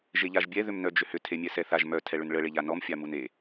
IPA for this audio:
ʒ e ʎ a ʒ bʲ ɛ ð ʏ m n œ d͡ʒ ʏ h ʏ tʰ e mʲ ɛ s ɛ θ a ʒ m œ tʰ ɛ ɭ ʏ n ɭ ə ɭ e ʎ a n ɔ m fʲ a m u n e

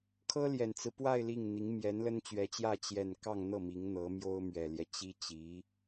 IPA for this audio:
kʰ ɤ˥ l j ɛ˨˩ n t͡s ɹ̩˦ p w a˥˧ ɪ̯ l i˥˩ ŋ n̪ i˧˥ ŋ m j ɛ˧˥ n l ə˥ n t͡ɕ ɥ ɛ˧˥ t͡ɕ j ä˥˧ t͡ɕ j ɛ˥˧ n k ɑ˥˧ ŋ n̪ ɤ˥˩ m i˧˥ ŋ n̪ ɤ˧˥ m j o˥ ʊ̯ m ɥ ɛ˨˩ l j ɛ˦ t͡ɕ i˥ t͡ɕ i˧˥

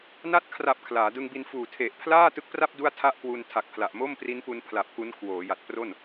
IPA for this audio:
n a˦˥ t̚ kʰ r a˨˩ p̚ kʰ l aː˩˦ d ɯ˧ ŋ b i˧ n f uː˨˩ tʰ e˨˩ ʔ pʰ l aː˥˩ t ɯ˦˥ k̚ p r a˥˩ p̚ d u˥˩ a̯ tʰ a˥˩ ʔ k w u˧ n tʰ a˨˩ k̚ pʰ l a˨˩ ʔ m o˥˩ m p r i˦˥ n p u˧ n pʰ l a˨˩ p̚ k u˦˥ n kʰ w oː˩˦ j a˨˩ t̚ p r o˥˩ n

